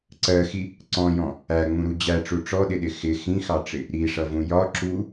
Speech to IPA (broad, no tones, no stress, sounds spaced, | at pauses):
ǀ ɜ x i | ǀ ɔ̃ j ɔ̃ | æ ŋ͡m ũ ɾ u d͡ʑ æ ʈ͡ʂ u ʈ͡ʂ ɔ ɗ ɪ ɗ ɪ x ɪ x ĩ x ɑ ʈ͡ʂ ɪ | ɾ i ʂ ʌ v ũ j ɒ ǁ u